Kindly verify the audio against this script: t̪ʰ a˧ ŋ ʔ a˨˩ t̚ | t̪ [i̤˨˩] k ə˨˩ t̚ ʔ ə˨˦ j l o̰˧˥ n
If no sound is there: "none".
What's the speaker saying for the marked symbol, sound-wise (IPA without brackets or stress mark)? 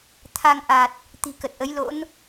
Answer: i̤˨˩